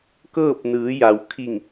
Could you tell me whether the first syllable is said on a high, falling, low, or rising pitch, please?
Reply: falling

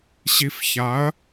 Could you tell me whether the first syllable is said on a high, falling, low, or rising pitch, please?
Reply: low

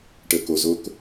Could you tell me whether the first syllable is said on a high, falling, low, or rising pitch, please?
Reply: low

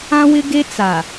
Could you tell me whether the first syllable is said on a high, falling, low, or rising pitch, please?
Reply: high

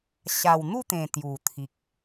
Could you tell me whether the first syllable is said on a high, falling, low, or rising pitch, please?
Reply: low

